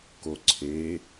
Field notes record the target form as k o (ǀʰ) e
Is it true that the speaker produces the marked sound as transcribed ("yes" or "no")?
yes